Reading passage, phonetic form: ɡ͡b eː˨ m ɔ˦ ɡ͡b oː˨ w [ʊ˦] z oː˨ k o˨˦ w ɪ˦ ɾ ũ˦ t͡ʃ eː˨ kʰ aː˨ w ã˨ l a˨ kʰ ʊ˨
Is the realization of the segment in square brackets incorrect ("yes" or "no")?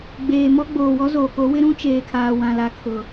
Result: yes